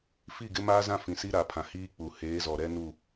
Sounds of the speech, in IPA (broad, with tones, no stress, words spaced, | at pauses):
fi˦˨ɡɪ˦ maː˦zã˦ fĩ˨si˦ɾa˨pʰã˨ hiː˦k͡pu˨ heː˨˦zɔ˨ ɾɛ˦ nu˦˨